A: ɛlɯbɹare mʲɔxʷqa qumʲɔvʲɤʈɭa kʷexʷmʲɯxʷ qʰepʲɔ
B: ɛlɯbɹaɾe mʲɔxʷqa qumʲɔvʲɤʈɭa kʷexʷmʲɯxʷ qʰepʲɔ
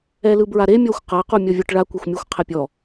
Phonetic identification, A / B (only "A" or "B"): B